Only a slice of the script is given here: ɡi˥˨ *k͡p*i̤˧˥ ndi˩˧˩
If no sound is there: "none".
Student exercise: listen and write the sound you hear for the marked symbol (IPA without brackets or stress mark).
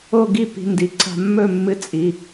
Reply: p